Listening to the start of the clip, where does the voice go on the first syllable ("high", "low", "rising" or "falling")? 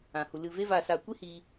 low